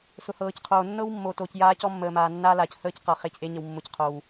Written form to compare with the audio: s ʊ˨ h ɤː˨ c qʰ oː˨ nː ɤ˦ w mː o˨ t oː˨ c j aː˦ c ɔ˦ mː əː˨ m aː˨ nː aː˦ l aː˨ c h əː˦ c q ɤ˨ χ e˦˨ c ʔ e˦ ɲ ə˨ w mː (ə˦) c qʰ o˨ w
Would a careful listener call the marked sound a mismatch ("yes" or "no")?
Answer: yes